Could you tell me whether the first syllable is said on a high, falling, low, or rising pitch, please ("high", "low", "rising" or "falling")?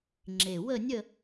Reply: low